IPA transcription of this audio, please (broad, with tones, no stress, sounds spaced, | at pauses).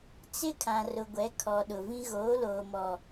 t͡s ɪ˦ kʰ ã˨ r ʊ˨ ɡʷ ɛ˨˦ kʰ ɔ˨ ɗ ʊ˨ v ĩ˦ ɣ oː˨˦ l oː˨ m ɔ˨